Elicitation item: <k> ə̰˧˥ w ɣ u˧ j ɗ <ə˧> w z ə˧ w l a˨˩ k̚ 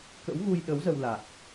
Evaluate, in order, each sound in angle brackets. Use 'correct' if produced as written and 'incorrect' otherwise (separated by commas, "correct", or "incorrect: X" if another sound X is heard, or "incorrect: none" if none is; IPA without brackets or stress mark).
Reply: correct, incorrect: ə˨˦